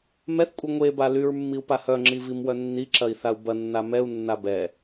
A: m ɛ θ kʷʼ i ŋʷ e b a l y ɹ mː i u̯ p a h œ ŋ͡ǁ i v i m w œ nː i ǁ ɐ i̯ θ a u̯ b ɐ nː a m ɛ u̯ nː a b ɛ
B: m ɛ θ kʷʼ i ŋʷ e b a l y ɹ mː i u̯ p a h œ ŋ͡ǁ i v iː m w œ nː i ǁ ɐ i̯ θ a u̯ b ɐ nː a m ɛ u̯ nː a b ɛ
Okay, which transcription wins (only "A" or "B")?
A